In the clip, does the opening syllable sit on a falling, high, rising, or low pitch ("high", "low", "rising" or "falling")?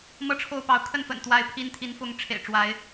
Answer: high